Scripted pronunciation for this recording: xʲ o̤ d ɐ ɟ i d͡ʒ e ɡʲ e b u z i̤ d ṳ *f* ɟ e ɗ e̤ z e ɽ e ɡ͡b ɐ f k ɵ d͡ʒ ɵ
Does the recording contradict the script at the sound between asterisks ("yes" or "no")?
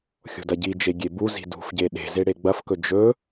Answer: no